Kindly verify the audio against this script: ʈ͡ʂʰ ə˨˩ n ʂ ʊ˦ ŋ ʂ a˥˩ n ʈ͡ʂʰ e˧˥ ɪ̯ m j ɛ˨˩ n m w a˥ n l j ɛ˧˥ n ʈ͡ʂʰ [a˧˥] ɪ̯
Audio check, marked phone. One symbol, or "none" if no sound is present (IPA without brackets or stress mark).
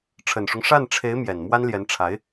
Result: a˧˥